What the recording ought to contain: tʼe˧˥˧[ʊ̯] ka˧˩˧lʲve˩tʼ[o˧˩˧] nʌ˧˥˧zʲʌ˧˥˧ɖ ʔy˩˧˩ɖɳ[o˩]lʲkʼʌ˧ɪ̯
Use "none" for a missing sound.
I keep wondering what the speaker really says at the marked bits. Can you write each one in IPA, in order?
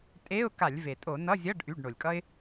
ʊ̯, o˧˩˧, o˩

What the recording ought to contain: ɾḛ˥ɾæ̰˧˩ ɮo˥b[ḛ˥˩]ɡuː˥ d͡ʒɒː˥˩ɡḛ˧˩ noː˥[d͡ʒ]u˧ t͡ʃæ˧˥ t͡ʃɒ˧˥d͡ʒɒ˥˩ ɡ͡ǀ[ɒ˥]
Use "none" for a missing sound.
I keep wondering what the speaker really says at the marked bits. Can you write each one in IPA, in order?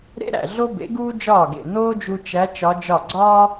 ḛ˩˥, d͡ʒ, ɒː˥

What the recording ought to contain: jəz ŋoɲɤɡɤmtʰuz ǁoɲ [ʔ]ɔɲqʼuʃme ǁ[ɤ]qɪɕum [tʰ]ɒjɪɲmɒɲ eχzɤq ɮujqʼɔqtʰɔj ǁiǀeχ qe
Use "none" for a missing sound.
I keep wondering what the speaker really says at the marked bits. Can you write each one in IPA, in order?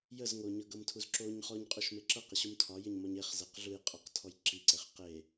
χ, ɤ, tʰ

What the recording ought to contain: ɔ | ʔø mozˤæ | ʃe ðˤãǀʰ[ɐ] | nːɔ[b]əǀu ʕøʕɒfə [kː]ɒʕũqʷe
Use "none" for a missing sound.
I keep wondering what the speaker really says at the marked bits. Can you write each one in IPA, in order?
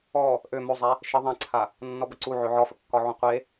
a, b, kː

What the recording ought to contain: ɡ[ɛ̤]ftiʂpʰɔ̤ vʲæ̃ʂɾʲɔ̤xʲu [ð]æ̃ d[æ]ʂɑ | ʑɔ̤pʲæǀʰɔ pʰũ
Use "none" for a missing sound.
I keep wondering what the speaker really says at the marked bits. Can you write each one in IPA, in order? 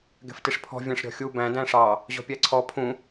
ɛ̤, b, æ̃

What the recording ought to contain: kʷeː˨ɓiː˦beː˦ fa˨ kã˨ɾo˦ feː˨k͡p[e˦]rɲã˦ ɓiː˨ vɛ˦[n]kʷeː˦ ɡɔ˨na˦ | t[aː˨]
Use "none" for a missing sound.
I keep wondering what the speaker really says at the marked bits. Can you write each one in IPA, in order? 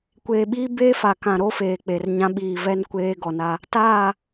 e˨, n, aː˦˨

